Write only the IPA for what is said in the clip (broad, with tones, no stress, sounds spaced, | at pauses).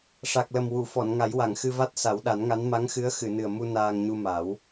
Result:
ʂ a˨˩ k̚ l ə˨˩ m w u˨˩˨ f ɔ˨˩˨ n ŋ a˨˩˦ j w a˨˩˨ ŋ x ɨ˧ v a˦˥ t̚ s a˨˩˦ w ɗ a˨˩˦ n ŋ a˧˥ n m a˧˥ ŋ x ɨ˧˥ ə̯ x ɨ˨˩˨ n ɨ˨˩ ə̯ m u˧ n aː˧ ŋ ɲ u˧ m a˨˩˦ w